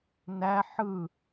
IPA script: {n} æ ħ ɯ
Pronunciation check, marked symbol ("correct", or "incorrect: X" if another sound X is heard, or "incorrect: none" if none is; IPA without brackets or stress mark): correct